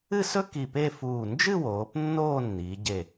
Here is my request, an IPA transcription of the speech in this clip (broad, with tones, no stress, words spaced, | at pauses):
ɨ˥˧sɵ˥ ki˧˩pe˥˧fuː˧˩ nd͡ʒɨ˥˧woː˩˧p nːoː˥˧nːiː˩˧ɟe˧˩